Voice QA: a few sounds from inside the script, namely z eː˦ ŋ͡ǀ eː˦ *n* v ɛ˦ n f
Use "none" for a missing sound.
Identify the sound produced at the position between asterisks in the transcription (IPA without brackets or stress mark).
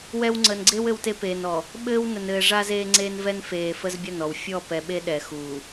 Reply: n